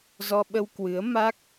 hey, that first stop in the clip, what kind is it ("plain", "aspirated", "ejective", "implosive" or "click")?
implosive